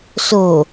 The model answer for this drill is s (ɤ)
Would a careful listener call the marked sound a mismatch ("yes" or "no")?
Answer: yes